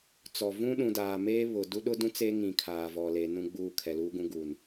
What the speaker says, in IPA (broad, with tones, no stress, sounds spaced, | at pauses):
t͡s ɔ˨ v ũ˦ ɗ ũ˨ d aː˨ m eː˦ β ʊ˨ d u˦ ɗ ʊ˦ d ũ˦ t͡s eː˦ ŋ ĩ˨ kʰ aː˨ v ɔ˨ l e˨˦ n ũ˦ ɡ͡b uː˦˨ kʰ ɛ˨ l uː˦ ɡ ũ˦ ɡ u˨ n